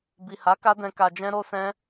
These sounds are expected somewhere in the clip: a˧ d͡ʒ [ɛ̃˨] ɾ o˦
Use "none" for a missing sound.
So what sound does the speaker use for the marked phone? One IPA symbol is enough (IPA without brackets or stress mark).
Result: ɛ̃˦